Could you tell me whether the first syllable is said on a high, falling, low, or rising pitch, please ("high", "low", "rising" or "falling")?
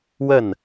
falling